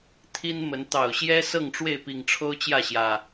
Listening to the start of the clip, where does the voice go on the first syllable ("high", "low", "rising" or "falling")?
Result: high